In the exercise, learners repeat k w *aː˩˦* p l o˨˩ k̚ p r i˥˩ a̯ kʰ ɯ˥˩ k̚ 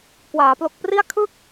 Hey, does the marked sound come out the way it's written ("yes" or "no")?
yes